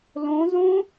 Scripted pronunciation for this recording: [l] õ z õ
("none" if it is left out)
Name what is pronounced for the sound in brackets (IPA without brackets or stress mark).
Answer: l